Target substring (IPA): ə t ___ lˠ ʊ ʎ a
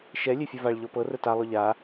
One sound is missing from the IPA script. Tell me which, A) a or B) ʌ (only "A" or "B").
A